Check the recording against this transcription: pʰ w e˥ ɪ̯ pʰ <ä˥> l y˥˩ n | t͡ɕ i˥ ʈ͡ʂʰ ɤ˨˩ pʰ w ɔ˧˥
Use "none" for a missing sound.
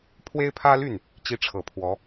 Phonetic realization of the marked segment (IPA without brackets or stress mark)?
ä˥